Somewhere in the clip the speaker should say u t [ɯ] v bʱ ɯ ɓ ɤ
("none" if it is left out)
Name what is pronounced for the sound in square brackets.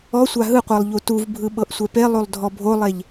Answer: u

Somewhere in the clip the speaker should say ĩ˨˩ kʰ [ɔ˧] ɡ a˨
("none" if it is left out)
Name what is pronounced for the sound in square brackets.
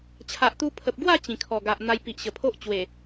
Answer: ɔ˨˩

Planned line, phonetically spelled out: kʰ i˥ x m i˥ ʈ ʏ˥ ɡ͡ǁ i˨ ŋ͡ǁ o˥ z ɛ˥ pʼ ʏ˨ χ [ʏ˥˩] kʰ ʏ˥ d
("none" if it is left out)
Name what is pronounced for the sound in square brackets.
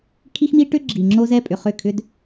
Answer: ʏ˥˩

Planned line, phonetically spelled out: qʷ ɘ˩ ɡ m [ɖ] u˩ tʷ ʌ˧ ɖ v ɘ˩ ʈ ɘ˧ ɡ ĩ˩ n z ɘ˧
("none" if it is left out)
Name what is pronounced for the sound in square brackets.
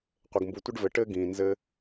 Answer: b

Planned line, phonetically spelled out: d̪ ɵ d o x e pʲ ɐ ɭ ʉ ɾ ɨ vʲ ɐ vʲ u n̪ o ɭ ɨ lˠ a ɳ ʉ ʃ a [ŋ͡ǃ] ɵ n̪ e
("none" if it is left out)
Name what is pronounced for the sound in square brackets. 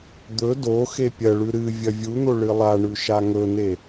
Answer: ŋ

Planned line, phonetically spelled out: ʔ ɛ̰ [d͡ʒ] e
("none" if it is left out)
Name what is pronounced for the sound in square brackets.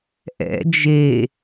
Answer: d͡ʒ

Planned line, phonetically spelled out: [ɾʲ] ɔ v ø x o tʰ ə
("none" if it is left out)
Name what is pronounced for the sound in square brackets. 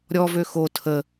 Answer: ɾʲ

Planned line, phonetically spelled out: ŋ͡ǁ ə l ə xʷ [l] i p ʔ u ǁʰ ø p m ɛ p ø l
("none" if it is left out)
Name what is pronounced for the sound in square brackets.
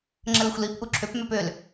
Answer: l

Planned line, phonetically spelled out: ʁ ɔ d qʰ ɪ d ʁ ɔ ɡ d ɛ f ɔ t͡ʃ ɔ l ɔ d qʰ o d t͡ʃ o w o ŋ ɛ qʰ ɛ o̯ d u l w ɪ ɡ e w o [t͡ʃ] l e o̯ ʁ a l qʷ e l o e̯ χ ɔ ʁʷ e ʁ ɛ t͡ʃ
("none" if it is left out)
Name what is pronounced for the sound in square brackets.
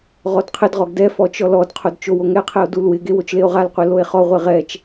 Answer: t͡ʃ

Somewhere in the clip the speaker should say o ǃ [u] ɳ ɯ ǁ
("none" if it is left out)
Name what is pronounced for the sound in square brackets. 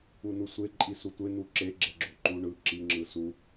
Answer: u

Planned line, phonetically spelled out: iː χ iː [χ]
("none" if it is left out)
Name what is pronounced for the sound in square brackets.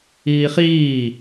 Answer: none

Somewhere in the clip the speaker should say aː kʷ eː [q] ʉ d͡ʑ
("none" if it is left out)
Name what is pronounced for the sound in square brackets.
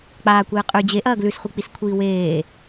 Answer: qʼ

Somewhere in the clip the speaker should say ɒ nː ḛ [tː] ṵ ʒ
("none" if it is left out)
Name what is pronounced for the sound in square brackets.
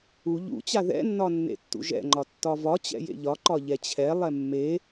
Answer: tː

